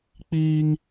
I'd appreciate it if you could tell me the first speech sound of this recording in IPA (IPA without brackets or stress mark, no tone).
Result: k͡p